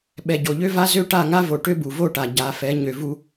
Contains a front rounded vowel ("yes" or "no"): yes